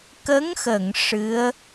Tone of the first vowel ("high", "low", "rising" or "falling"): rising